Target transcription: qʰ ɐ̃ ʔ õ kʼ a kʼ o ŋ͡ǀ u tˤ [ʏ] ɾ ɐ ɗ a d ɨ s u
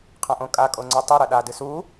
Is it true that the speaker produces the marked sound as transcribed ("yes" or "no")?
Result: no